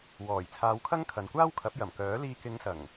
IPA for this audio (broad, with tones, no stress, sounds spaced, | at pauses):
w ɔː˨˩ j t͡sʰ aː˨˧ w kʰ ɐ˥ ŋ kʰ ɐ˨ n kʷ aː˥ w kʰ ɐ˨˥ p̚ j ɐ˨˩ m k œː˨˥ l iː˧ k ɪ˨˧ ŋ s ɐ˨˩ ŋ